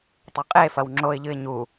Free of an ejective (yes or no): no